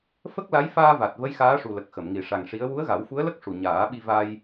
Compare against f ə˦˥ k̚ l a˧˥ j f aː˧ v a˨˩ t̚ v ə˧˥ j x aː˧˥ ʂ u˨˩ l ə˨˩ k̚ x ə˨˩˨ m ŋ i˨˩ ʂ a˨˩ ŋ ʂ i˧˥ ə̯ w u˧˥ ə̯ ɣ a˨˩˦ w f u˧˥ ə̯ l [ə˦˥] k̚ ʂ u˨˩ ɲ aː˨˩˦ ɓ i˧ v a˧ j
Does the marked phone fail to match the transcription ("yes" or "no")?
no